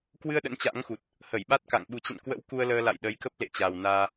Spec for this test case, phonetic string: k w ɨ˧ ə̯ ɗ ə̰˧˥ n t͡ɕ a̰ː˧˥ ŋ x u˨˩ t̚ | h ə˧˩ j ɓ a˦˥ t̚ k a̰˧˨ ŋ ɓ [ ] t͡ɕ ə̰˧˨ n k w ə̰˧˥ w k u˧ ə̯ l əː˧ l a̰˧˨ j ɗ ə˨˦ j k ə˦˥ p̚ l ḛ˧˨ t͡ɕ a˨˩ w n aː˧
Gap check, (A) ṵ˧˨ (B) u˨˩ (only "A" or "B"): B